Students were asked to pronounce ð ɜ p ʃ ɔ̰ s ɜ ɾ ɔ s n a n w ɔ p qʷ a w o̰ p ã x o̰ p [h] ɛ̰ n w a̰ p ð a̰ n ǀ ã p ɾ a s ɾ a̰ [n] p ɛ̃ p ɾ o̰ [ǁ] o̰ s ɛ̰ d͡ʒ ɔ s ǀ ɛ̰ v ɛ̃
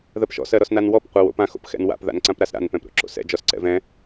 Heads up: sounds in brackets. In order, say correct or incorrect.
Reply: incorrect: x, correct, correct

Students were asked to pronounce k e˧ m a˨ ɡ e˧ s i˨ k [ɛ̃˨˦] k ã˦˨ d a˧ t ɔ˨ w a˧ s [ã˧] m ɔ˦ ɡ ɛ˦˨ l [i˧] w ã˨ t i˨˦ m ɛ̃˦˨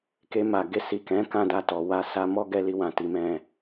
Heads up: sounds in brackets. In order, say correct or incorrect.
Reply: correct, incorrect: a˧, correct

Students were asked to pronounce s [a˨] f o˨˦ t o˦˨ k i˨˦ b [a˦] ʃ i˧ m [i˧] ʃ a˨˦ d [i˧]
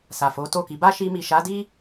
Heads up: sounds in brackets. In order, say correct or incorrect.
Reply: correct, correct, incorrect: i˨, incorrect: i˦

